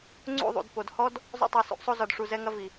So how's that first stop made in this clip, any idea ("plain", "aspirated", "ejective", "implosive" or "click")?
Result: click